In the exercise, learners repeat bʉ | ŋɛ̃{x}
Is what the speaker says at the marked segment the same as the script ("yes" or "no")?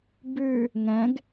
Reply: no